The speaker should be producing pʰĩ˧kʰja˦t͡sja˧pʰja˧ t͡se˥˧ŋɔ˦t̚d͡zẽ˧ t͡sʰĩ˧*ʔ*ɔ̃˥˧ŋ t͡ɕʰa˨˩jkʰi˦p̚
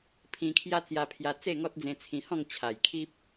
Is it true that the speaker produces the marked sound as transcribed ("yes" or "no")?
no